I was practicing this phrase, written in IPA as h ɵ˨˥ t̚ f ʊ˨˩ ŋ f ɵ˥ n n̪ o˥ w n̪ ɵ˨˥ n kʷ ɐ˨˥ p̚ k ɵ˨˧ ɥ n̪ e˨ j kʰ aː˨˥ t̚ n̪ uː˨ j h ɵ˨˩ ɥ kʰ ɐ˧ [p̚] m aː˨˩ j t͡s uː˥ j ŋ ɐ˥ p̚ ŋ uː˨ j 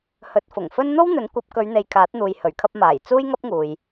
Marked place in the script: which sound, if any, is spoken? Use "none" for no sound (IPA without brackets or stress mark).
p̚